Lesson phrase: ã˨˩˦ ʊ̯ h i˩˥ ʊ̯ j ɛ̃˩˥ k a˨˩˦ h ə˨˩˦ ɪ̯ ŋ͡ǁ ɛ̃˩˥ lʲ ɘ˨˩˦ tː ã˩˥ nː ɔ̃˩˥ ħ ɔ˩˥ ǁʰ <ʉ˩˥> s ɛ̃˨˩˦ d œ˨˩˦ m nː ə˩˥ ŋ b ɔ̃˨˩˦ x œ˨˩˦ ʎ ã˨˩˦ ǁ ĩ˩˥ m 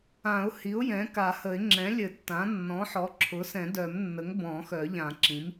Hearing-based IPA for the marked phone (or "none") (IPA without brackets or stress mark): ʊ˩˥